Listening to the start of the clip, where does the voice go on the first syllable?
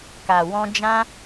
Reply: low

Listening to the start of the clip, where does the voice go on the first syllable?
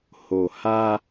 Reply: low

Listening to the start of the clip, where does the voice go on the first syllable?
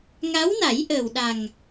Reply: rising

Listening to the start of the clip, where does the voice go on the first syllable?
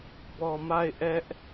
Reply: low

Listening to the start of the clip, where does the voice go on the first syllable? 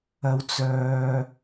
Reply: rising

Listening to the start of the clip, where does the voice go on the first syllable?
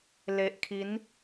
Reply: low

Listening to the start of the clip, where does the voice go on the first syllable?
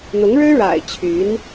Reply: rising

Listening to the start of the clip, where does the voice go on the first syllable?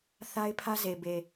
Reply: high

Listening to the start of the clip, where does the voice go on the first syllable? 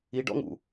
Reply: low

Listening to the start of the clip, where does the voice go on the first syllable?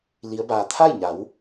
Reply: rising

